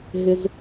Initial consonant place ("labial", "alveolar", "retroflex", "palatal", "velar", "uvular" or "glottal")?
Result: glottal